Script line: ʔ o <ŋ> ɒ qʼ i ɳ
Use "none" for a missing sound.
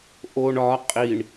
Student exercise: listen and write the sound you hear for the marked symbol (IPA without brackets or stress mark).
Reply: ɳ